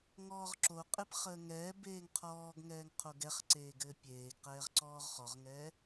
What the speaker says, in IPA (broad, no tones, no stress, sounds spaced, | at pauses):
ŋ ɔː ʁ ǁ o qʼ e p χ əː ŋ ɛː b eː ŋ qʰ ɔː ɡ ŋ ɛː ŋ qʰ o ɡ ɛ χ ǀ eː ɡ ɘː pʲ eː ɡ q ɛː ʁ ǀ ɔː ʁ χ ɔ ʁ ŋ ɛ